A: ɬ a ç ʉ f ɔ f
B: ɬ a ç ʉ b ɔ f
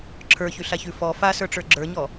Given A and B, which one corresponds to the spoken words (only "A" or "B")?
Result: A